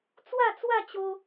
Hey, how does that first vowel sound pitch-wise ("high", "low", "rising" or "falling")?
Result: falling